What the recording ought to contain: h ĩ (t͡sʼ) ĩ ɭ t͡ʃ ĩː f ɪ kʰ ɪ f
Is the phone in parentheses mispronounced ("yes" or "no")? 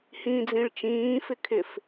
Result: yes